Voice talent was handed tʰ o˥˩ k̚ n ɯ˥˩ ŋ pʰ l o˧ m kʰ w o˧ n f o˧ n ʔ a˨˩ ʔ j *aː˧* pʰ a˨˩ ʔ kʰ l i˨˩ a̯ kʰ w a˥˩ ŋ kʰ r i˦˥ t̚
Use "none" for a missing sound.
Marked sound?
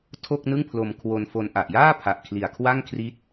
aː˥˩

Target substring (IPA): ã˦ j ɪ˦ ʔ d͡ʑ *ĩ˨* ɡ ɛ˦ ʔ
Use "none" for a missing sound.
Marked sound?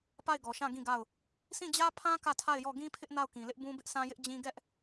ĩ˦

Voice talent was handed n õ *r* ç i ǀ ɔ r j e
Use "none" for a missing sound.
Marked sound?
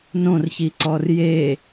r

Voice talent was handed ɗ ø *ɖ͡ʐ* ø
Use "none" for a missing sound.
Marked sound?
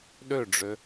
ɖ͡ʐ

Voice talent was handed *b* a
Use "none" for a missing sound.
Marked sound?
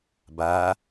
b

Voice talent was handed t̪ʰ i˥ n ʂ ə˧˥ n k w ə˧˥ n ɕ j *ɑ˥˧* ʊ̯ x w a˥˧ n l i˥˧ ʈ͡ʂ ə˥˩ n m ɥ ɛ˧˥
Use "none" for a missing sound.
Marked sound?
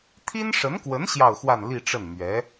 ɑ˥˧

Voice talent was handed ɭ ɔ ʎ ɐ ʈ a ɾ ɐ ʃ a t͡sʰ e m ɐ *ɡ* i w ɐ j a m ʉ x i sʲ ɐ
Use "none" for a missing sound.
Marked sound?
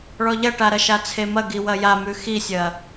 ɡ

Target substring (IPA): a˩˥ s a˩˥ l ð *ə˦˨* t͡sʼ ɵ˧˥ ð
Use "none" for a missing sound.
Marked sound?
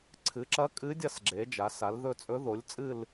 ɵ˦˨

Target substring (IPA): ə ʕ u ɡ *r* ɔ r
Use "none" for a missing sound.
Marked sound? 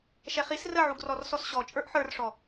r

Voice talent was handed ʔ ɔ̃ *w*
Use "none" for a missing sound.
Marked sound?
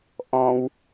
w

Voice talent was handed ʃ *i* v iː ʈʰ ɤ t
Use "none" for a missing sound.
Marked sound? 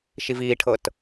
i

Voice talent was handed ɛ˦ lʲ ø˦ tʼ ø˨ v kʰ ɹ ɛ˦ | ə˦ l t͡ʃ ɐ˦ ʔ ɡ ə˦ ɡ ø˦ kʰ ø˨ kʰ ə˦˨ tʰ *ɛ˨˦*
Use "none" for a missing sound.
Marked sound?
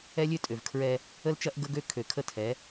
ɛ˨˦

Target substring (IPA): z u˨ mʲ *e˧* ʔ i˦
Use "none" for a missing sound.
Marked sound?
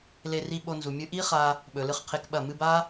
ɨ˧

